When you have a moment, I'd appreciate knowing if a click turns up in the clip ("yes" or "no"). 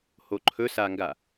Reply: yes